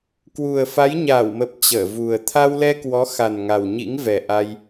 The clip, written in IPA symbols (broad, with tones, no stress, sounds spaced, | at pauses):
k w u˨˩ ə̯ f a˨˦ j ɲ aː˧˩ w m ə˨˩ p̚ t͡ɕ əː˧˩ v u˨˩ ə̯ t̪ʰ a˧ w l ɛ˧ k w ɔ˨˦ x a˨˩ n ŋ a˨˩ w ɲ ḭ˧˥ ŋ v ɛ˨˩ ʔ a˧ j